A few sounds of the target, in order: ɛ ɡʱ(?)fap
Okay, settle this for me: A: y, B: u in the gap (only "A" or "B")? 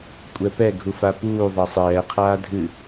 B